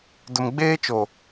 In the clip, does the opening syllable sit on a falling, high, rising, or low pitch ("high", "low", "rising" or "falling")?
low